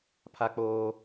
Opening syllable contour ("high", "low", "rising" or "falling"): high